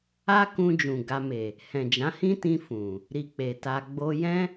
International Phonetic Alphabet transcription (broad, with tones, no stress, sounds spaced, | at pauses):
a˦ k ũ˧ d͡ʒ ũ˨ ɡ a˧ m e˨ | h ɛ̃˨ d͡ʒ ã˨˦ h ĩ˦ t ĩ˧ f ũ˨ | ɾ i˧ k͡p e˨ t a˧ ɡ͡b o˧ j ɛ̃˦